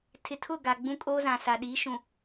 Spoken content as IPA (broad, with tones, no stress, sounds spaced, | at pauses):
tʰ ɪ˨ tʰ ʊ˦˨ ɡ a˨ ɡ͡b ũ˦ kʼ oː˦ z ã˨ s a˨ ɗ iː˨˦ ʃ ũ˨